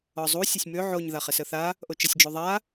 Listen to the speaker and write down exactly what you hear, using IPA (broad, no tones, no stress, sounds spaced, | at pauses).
ɒ zˤ u sʲ ɘ sʲ m ø ʕ o ɲ ð a χ ɛ s ə θ a | ʔ o t͡ʃ ə sʲ d͡ʒ o ðˤ a